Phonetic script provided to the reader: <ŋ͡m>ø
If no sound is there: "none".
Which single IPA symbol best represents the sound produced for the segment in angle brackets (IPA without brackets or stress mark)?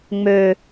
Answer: ŋ͡m